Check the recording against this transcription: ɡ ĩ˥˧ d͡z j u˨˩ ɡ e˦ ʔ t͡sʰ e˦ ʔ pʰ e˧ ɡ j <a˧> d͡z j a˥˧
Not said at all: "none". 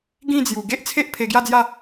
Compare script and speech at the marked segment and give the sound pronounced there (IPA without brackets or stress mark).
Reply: a˥˧